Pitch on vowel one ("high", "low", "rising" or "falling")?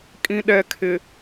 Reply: low